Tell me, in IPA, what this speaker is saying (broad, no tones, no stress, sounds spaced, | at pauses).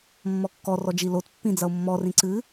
mː ɔ kː ɔ r ɔ d͡ʒ i l o t pː ĩ d͡z ɐ o̯ mː ɔ r ĩ ǀ ɨ